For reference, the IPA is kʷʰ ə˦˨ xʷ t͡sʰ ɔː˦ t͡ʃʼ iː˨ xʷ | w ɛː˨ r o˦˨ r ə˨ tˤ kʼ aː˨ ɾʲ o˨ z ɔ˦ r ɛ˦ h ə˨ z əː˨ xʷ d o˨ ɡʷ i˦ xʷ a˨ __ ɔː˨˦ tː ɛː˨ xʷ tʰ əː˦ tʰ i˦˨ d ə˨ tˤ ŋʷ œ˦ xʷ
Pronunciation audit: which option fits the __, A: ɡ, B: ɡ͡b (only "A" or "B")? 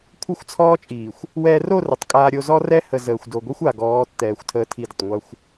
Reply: A